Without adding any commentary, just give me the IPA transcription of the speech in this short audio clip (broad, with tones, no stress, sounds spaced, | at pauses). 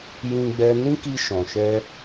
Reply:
j ĩ˧ ɡ͡b ɛ˧ n ĩ˦ k i˧ ʃ ɔ̃˨ ʃ ɛ˧